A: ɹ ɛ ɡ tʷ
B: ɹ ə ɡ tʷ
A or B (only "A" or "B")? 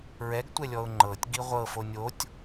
A